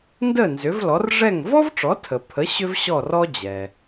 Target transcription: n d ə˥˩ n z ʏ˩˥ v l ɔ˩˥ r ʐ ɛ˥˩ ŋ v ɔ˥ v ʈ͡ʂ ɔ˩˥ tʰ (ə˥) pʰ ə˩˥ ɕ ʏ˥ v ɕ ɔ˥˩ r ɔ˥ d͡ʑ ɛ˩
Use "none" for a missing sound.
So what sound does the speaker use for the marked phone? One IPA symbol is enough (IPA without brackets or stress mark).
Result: ə˩